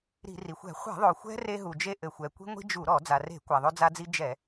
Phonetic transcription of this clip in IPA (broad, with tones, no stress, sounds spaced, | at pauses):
ɾ i̤˧˩˧ r i˩ xʷ ɛ̤˧˩˧ χʷ ɛ̤˧˩˧ ðˤ o˩ xʷ ɛ̤˦ r e˦ ɦ u˩ d͡ʒ e˦ ʔ ɘ˩ xʷ ɛ˩ kʷ i̤˦ ŋʷ i̤˦ d͡ʒ u˧˩˧ ɾ ɔ˧˩˧ d͡z a˩ r e̤˧˩˧ kʷ a˩ ðˤ o˦ d͡z a˦ d͡z i˦ d͡ʒ ɛ˧˩˧